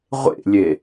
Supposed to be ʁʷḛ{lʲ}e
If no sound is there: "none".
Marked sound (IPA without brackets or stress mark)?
lʲ